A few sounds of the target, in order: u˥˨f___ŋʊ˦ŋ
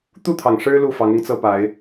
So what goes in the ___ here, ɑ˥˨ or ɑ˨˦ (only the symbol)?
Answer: ɑ˨˦